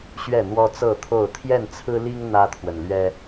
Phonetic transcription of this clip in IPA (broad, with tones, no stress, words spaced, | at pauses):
ɕɥɛ˥˨n̪wɔ˦t͡sɤ˥˨t̪ʰo˥˨ʊ̯ t̪ʰjɛ˥˨nt͡sʰɹ̩˦li˦ŋ n̪ä˦t̪ʰwə˨nlɥɛ˦